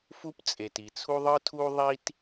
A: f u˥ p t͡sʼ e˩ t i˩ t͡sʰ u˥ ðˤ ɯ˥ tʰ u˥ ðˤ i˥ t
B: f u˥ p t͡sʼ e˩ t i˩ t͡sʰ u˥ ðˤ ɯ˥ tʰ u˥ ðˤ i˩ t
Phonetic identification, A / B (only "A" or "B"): A